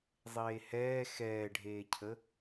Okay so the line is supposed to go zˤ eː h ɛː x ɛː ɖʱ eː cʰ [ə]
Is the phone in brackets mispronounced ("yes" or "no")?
no